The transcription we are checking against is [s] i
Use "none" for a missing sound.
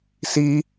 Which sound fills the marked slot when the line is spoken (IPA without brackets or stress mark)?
s